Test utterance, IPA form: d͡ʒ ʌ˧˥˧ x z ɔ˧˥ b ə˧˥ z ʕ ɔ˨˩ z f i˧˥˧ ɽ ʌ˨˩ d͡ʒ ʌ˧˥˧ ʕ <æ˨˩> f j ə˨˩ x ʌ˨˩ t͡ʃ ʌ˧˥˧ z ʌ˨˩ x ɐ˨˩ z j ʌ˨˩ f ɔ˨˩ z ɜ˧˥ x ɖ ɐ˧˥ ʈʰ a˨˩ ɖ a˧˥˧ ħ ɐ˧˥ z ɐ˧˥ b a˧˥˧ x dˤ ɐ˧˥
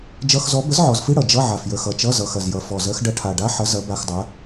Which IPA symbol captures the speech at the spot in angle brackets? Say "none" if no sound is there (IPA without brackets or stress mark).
a˨˩